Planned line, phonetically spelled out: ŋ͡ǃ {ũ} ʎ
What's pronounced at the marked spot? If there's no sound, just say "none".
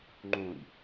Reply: ũ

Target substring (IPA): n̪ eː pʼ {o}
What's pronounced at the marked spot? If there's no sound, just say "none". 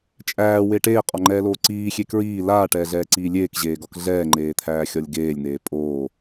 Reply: oː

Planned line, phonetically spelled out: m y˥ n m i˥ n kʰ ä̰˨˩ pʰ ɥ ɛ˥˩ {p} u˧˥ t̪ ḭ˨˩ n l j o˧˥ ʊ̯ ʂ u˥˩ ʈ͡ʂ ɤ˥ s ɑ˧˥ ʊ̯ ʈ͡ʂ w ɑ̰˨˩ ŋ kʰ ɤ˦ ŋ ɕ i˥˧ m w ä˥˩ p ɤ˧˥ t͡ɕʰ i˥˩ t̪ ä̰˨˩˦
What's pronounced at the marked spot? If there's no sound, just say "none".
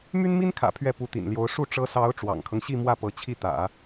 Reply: p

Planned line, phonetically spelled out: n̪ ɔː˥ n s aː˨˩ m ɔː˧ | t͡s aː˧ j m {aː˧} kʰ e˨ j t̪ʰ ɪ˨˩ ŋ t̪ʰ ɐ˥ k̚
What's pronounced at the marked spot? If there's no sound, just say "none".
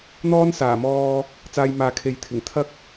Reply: aː˨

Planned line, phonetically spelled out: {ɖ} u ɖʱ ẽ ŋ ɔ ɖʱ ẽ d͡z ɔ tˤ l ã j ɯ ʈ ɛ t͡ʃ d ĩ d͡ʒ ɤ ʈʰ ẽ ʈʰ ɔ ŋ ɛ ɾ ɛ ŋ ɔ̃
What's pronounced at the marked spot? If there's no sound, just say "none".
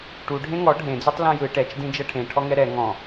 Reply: ʈ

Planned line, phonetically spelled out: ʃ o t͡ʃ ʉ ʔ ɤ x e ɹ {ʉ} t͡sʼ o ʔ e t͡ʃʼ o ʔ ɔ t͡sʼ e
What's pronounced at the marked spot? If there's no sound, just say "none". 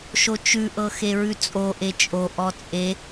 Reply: ʉ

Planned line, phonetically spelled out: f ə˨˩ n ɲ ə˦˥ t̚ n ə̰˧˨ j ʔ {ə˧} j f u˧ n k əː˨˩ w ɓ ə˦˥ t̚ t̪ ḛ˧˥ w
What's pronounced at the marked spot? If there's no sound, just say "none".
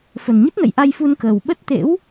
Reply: a˧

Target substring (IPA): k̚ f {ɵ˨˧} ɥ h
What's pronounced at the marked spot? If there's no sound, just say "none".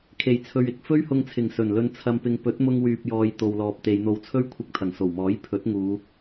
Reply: ɵ˥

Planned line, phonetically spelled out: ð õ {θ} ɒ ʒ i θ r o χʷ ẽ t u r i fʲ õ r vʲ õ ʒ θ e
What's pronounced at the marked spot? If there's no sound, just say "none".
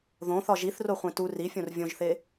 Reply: θ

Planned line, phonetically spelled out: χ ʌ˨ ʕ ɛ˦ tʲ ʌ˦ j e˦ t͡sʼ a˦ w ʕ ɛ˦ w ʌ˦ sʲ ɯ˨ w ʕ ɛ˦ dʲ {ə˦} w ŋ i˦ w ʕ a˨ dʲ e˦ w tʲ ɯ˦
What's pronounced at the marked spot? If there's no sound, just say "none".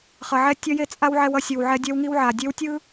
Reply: ɛ˦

